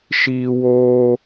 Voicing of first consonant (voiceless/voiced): voiceless